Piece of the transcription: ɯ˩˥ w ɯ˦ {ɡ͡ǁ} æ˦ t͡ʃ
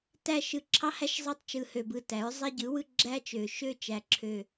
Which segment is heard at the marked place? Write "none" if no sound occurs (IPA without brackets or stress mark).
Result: ɡ͡ǁ